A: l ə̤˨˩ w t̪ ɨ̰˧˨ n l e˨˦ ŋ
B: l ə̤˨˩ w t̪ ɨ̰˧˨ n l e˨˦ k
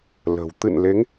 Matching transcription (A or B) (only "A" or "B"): A